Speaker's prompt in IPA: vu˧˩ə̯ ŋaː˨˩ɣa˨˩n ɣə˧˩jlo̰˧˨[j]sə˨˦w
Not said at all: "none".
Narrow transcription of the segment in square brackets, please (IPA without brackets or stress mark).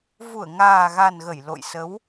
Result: j